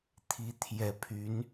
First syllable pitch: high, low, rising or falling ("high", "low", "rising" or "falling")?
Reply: rising